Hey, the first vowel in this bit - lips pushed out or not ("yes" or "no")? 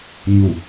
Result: yes